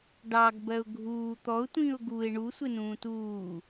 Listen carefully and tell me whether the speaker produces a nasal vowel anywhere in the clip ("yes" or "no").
yes